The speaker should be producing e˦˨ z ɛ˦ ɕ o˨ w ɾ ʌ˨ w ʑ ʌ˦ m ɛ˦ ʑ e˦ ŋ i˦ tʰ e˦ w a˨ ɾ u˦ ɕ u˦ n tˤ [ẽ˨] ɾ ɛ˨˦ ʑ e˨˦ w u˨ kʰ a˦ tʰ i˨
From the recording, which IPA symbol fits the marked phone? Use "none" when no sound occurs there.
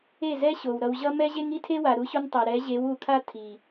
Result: e˨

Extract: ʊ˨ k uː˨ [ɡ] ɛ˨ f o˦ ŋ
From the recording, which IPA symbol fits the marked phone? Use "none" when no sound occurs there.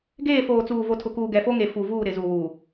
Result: ɡ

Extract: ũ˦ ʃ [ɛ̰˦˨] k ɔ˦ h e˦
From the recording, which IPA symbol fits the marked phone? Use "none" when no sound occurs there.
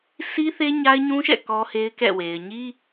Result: ɛ̰˦˨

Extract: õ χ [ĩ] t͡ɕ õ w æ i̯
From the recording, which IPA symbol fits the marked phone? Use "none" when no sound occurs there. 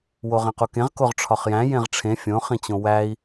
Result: ĩ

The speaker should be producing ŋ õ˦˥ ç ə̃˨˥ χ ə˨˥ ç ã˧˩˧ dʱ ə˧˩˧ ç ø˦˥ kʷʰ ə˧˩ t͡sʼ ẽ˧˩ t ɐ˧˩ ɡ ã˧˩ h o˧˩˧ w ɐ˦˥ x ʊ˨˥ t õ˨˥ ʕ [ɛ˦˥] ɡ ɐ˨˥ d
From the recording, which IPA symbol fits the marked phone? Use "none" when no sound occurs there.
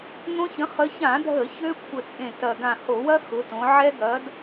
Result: ɛ˦˥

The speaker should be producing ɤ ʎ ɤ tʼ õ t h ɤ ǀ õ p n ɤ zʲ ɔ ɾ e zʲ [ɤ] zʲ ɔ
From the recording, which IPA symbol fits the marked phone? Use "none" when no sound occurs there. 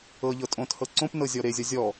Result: ɔ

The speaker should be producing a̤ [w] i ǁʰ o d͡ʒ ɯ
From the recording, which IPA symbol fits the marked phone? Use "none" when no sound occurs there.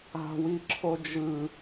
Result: w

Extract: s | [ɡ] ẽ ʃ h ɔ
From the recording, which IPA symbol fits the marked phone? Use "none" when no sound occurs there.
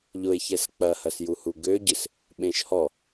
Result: ɓ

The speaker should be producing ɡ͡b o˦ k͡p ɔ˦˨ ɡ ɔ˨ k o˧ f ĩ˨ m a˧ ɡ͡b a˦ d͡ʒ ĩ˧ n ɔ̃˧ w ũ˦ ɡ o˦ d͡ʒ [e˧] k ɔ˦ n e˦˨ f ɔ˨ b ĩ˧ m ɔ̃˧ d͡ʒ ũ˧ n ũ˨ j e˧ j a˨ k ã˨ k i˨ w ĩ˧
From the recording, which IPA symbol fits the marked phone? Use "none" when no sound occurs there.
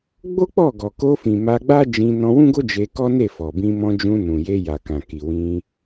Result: e˧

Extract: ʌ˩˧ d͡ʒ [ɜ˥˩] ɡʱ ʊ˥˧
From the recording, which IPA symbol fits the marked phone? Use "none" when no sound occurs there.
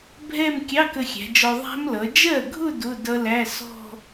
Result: ɜ˥˩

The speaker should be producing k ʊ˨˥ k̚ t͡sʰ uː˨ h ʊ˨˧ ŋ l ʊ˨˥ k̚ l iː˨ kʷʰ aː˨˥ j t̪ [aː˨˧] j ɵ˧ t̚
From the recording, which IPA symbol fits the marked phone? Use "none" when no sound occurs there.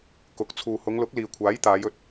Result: aː˨˧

